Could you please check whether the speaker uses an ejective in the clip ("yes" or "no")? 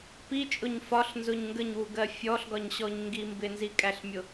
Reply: yes